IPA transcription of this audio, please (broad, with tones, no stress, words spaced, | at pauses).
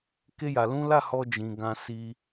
ke˦ja˧lũ˦ la˦˨hɔ˧ d͡ʒĩ˨ɡã˧ si˧